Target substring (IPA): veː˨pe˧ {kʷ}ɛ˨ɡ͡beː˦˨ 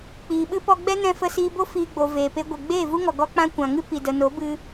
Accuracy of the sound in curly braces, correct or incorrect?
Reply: incorrect: ɡʷ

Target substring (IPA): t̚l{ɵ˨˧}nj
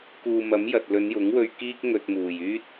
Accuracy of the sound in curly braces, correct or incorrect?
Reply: correct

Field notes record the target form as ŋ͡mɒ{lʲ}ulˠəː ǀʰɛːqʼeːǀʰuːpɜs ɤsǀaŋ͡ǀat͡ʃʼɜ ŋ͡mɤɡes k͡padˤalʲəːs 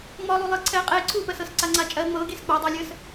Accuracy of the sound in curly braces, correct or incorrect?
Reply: incorrect: lˠ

